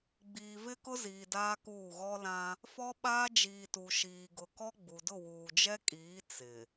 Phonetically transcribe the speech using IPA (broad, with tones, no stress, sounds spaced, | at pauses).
ɡ͡b iː˨ v ɪ˦ k ʊ˦ z iː˨ d aː˦ k uː˦˨ ɣ ɔ˦ l ã˦ | f ɔ˦ ɓ aː˦ d͡ʒ iː˨ t u˨ ʃ iː˨ ɡ ʊ˨ k ɔ˦ ɡ͡b u˨ d ʊ˦˨ w uː˨ d͡ʒ ɛ˦ kʼ iː˨˦ t͡s ɪ˨